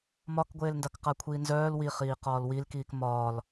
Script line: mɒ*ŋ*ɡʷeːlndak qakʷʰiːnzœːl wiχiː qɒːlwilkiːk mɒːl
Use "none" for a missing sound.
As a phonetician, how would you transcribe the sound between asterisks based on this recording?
k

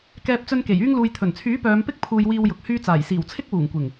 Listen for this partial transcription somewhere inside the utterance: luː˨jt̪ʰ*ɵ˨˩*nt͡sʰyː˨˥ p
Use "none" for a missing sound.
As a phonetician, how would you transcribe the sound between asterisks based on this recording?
ɵ˨˩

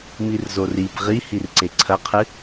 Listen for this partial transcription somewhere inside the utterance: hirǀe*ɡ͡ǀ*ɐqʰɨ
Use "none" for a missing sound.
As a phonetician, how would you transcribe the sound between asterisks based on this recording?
ǀʰ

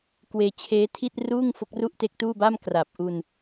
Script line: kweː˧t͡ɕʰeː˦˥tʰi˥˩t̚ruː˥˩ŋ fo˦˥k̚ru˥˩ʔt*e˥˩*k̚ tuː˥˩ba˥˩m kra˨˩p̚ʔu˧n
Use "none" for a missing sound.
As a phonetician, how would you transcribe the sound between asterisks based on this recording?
e˦˥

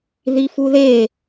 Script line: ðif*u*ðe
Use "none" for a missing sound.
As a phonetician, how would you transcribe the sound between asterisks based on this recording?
u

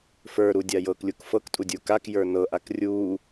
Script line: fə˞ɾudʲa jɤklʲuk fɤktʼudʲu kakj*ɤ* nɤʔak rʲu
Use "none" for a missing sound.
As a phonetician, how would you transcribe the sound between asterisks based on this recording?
ə˞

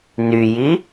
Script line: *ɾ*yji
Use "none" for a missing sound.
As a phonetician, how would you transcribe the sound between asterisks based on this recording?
n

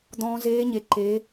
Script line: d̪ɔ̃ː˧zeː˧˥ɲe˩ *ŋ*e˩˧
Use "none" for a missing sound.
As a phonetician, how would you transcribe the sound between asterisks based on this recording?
ǃ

